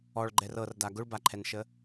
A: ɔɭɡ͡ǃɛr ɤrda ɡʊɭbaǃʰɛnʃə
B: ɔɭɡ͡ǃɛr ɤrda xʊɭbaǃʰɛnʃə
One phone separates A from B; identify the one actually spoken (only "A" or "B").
A